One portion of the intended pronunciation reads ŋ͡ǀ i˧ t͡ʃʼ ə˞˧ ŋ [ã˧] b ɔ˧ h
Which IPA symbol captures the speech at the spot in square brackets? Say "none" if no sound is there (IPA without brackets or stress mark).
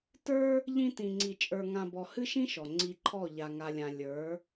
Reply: ã˧